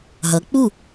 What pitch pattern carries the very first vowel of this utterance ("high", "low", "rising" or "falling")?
rising